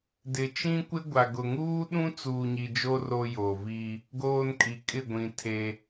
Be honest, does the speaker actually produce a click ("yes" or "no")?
no